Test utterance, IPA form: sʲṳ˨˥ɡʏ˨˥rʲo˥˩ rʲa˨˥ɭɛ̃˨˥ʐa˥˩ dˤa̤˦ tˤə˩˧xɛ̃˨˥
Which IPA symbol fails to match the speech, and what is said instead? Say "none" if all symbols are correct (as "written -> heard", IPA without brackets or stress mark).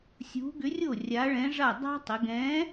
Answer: x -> ɡ